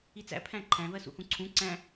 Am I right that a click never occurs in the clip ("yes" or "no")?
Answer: no